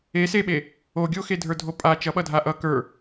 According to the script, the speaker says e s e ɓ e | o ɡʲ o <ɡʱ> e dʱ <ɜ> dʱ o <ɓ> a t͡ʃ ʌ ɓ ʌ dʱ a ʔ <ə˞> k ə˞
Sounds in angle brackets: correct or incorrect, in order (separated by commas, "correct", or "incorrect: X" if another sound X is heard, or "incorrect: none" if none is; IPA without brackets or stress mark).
incorrect: x, incorrect: ə˞, incorrect: pʼ, incorrect: ʌ